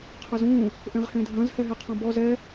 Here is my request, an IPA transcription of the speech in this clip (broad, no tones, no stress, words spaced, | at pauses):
qʰɐzũ | ʔẽʁhẽdʱɐ̃z hɛɦeqʰɔ̃bɔ zɛ